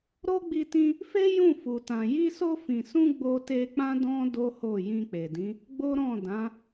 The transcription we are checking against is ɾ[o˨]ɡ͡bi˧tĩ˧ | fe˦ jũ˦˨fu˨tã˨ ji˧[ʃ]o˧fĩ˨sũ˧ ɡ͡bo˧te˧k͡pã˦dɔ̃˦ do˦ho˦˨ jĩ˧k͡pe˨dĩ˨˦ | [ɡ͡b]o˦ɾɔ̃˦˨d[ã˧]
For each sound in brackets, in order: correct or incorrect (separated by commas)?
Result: incorrect, incorrect, correct, incorrect